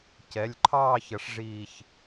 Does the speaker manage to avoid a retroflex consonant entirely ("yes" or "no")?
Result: no